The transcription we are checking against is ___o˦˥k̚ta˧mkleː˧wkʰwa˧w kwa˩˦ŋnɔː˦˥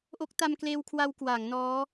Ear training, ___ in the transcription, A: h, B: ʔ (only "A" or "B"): B